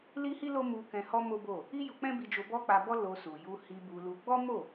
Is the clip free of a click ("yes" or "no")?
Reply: yes